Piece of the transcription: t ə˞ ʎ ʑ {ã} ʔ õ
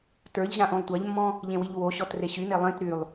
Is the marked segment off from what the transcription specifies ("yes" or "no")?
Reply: no